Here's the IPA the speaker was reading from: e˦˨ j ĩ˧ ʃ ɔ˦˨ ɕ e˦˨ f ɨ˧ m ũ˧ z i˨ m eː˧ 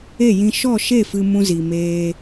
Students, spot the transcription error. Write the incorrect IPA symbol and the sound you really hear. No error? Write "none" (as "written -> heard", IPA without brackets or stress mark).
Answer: ɕ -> ʃ